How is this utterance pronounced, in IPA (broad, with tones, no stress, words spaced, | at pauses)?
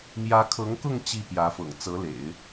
mjä˧˥kʰɤ˧˥ŋkʊ˥˧ŋ t͡ɕi˥˩pjä˧˥ fɤ̰˨˩ŋt͡sɤ˧˥lḛ˨˩˦ɪ̯